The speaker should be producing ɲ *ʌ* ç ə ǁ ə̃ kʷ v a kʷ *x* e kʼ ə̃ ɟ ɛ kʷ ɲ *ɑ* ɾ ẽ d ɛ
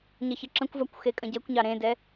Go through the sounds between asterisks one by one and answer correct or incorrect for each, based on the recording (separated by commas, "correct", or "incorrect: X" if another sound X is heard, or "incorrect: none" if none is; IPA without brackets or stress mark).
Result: correct, correct, correct